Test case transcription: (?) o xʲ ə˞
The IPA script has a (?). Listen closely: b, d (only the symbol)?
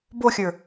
b